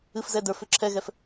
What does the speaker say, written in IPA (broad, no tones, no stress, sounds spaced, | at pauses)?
ɨ f z ɛ d ə˞ f ʏ ǁʰ ɛ ɣ ɛ f